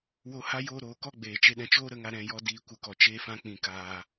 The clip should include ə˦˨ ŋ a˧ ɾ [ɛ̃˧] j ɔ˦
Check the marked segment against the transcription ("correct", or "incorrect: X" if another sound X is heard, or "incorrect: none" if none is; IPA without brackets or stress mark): correct